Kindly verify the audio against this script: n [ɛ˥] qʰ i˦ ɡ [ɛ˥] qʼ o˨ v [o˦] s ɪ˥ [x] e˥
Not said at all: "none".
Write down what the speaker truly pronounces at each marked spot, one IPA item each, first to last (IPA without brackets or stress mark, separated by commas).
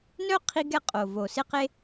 œ˥, ɛ˥, o˨, q